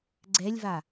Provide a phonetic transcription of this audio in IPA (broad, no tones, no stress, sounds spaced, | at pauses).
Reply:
ɡ͡ǀ ɛ lʲ v a